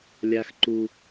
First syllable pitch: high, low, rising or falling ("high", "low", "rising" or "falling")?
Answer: high